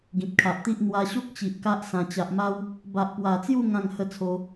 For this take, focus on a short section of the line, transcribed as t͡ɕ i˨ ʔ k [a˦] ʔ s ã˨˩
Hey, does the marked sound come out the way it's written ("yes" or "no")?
yes